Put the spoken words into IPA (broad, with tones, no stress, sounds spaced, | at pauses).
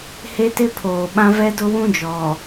h e˦ t ɪ˦ pʰ oː˨ ɓ ã˦ v ɛ˦ d ʊ˦ w ũ˦ d͡ʒ ɔ˨